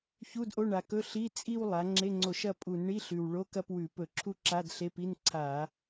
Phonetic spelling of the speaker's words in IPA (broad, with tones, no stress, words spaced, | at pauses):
çu˧˥˧dʔo˧˥˧ɳa˨˩kɵ˧˥˧ ɬi˧˥˧ t͡sʼi˥˧w lˠa˩˧ ŋ͡ǁe˧˥˧ŋ͡ǀo˧˩˧ʃɐ˥˧ pʼu˧˩˧nɳi˧˥˧ɬʉ˨˩w ɭo˧˥˧kɐ˥˧pwʉ˧˩˧ pɵ˧˩˧ǁʰu˥˧ ǁa˧˥˧dɬe˧˥˧pi˧˥˧n ǀʰa˧˩˧